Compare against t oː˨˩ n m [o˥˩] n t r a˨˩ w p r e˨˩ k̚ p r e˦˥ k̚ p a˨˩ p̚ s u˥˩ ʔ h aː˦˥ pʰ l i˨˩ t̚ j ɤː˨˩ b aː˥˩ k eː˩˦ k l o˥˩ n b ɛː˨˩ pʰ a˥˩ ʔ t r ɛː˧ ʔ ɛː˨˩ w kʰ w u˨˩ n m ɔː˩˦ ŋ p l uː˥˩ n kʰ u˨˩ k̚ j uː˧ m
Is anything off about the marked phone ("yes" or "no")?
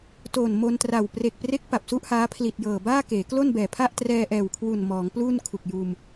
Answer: yes